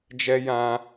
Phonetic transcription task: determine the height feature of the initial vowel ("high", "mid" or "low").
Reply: mid